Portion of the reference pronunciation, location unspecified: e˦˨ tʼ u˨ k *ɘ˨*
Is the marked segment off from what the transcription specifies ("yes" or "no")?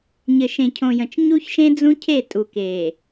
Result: yes